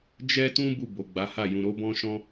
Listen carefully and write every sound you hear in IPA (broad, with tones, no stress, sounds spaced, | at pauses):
d͡ʒ ɛ˦ t ũ˦ b u˦˨ b o˨ ɡ͡b a˨˦ h a˦˨ j ũ˨ ɾ o˨˦ b ɔ̃˦ ʃ ɔ̃˦